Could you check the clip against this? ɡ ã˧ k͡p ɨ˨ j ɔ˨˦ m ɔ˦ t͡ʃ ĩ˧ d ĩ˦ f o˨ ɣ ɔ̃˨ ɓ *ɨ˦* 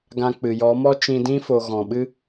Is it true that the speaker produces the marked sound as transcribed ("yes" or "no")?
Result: yes